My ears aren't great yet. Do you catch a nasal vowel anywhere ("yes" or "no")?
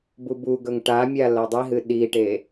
no